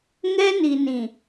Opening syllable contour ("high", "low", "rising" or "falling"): high